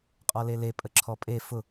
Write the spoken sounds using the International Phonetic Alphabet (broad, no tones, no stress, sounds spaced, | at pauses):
qʼ ɔ l e l e pʼ ə ǁʰ ɔ pʼ e f ʊ